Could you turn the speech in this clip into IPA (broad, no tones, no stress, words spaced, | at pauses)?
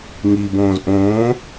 ŋibõːz ʔõː